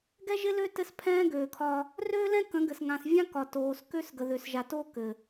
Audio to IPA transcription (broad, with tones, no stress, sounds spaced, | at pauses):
ɡ ɛ˦ ʒ ɪ˦ l ø˦ t ɘ˦ s pʰ ɛ̃ː˦ ɡ øː˨ kʰ ɒ˦ | r øː˦ l ɛ̃˦ k ə̃˨˦ ɡ ɘ˨ s ŋ ã˨ s vʲ ã˦ k ɒ˨ t oː˨ s k ø˦ s ɡ ə˨ ð ø˨ s ʒ a˨ t oː˦ k ɘ˨